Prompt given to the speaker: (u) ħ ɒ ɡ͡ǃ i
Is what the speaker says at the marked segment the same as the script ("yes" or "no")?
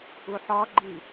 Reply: yes